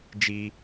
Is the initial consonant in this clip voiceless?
no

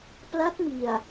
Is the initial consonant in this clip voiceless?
yes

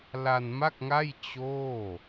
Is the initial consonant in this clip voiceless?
no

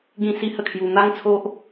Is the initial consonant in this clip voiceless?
no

